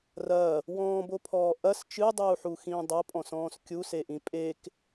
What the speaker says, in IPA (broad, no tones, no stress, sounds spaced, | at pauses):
r ɐː | w ɔ̃ː b o pʰ ɔː ʔ ɐ s t͡ʃ ɨ dˤ uː ħ u x ĩː dˤ ɐ pʼ ɔ̃ s ɔ̃ː s kʲ u s e ʔ ĩ pʼ e k